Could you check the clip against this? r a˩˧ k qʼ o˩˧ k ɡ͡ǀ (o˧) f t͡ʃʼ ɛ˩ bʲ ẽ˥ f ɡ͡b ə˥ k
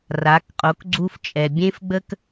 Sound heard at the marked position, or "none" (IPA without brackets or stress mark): u˧